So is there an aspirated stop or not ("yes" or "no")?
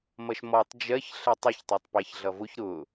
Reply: no